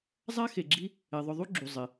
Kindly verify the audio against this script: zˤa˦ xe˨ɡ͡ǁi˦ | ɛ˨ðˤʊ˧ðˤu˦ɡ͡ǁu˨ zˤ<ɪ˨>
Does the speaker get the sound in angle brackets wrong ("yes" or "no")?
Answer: no